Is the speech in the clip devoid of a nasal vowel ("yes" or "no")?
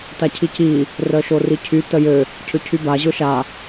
yes